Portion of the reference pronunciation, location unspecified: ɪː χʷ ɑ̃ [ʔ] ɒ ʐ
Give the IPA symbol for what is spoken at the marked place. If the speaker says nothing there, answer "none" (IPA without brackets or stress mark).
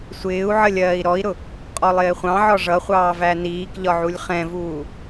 ʕ